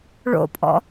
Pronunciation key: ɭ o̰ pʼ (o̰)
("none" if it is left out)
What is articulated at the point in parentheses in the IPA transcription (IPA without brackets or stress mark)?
ɔ̰